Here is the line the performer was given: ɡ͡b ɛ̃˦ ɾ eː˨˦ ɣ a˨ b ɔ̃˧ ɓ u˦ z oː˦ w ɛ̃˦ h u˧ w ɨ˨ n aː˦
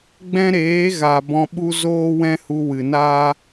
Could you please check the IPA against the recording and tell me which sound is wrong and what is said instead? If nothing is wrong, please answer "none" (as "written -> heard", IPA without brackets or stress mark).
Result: none